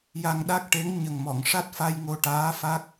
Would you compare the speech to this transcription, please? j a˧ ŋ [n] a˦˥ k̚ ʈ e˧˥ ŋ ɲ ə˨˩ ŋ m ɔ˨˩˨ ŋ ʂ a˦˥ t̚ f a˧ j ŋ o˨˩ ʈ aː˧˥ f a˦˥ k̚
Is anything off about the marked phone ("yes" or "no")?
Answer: yes